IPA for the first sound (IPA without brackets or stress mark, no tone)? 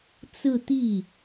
t͡s